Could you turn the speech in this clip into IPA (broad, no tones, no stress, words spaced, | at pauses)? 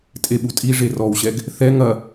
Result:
tʼeɓutʼi ʐerɔwɕɛɡ | θɛ ŋɐ